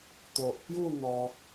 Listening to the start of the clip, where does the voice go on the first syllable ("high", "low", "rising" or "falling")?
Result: low